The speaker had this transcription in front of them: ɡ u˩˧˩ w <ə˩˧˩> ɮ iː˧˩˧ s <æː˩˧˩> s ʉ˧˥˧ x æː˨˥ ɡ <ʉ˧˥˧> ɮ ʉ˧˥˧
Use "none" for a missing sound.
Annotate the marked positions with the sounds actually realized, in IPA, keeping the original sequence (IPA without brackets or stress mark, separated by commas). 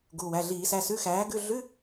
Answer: æ˩˧˩, æ˩˧˩, ʉ˧˥˧